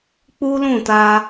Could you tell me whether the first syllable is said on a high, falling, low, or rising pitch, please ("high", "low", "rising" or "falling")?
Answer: high